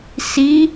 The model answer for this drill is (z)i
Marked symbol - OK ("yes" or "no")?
no